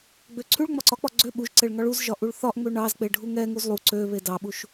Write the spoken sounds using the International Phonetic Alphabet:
ɡ͡b ø ǀʰ y ɭ ŋ͡m ɒ ǀ ɒ k͡p ɒ ɡ͡ǀ ø ɓ u ʒ ǀ e ɭ ŋ ɒ ɭ u z ʒ ɒ ʔ u ɭ θ ɒ ʔ ŋ͡m ø ɳ ɑ z k͡p e ɖʱ u ŋ ɛ ŋ u z lˠ u ǀ ø β e d ɑ ɓ u ʃ

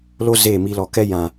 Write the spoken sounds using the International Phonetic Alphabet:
l o˦ z eː˦˨ m i˧ l ɔ˨ k ɛ˦ j ã˨

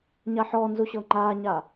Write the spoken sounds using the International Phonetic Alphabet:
ɲ a ħ ɔː n z u ɕ ɤː ŋ͡ǃ aː ɲ aː

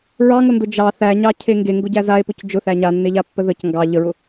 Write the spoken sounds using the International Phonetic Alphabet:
ɹ ɑ ŋ ʊ n d ʊ d͡ʒ ɑ θ æ ɲ ɑ cʰ e ŋ ɡ e ŋ ɡ ʊ ɟ æ z a e̯ p ʊ c d͡ʒ ʊ θ æ ɲ a nː e ʎ a pː ə ð ə c ŋ ɡ ɑ ʎ ə ɹ ʊ

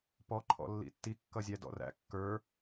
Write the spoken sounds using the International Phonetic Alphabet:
p ɔ ǃʰ ɔ̰ lː ḭ tː i kː ʌ zʲ æ d ɔ̰ r æ̰ kː ə˞

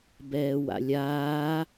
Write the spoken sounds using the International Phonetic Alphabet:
b ɛː w a̰ lʲ aː

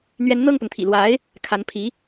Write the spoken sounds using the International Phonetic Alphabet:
n̪ ɥ ɛ˧˥ n n̪ ɤ˥˩ ŋ p ʊ˩ ŋ t̪ʰ ḭ˨˩ l w a˧˥ ɪ̯ | kʰ a˧˥ n pʰ i˧˥

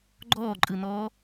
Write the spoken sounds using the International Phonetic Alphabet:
ɡ͡ǃ ɔː ǃʼ ɯ n ɔː

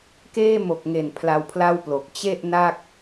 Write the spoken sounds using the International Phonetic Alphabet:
k eː˥˩ m o˨˩ k̚ ŋ e˨˩ n pʰ l a˧ w pʰ l a˥˩ w p l o˨˩ k̚ t͡ɕ e˥˩ ʔ n a˥˩ k̚

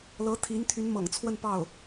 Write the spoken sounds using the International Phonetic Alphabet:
l ɤ˧˥ t̪ʰ i˧˥ n t̪ʰ y˧˥ n m ɤ̰˨˩ ŋ t͡sʰ w ə˥˧ n p ɑ˥˩ ʊ̯

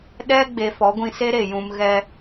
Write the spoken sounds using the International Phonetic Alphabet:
ɗ ɛ˦ ɡ͡b e˨ f ɔ˨˦ ɡʷ ĩ˧ s e˦ ɾ e˨ j ũ˧ m ɣ ɛ˧

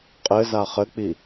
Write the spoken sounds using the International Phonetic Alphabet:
qʼ ɘ z a χ ɘ k͡p i

